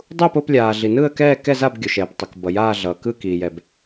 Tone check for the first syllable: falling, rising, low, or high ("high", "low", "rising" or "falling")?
falling